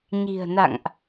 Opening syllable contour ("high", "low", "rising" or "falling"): low